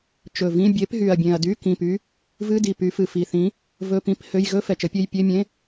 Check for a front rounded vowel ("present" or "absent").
present